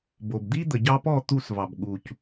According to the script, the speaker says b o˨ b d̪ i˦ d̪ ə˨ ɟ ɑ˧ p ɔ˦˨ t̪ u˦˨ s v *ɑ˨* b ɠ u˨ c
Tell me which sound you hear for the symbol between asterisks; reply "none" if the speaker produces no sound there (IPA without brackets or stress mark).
ɑ˨